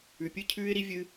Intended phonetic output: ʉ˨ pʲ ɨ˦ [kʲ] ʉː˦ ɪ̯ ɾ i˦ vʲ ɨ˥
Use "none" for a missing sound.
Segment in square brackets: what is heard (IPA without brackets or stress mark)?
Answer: cʰ